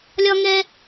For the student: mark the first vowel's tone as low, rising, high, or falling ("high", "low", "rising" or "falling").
high